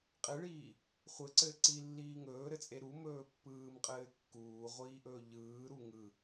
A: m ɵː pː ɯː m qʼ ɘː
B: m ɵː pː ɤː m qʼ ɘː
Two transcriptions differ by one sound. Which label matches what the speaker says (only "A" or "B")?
A